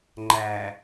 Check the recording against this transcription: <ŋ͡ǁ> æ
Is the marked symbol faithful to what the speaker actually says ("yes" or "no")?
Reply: no